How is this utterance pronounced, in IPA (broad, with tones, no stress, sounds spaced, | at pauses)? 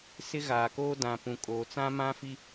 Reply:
s ɪ˦ ɣ aː˨ k oː˦ d ã˨ p ũ˨ kʼ oː˨ t͡s ã˦ m ã˦ f i˦